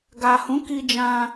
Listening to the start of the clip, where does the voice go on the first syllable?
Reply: low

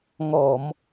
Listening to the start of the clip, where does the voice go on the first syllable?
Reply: low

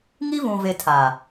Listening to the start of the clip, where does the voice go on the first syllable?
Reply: high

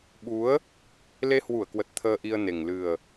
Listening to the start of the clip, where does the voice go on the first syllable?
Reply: rising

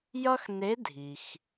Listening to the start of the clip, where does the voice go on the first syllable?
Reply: high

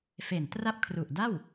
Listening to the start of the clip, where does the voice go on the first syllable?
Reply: low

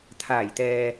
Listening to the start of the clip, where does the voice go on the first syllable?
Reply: low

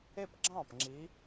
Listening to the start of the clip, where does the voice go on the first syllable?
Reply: falling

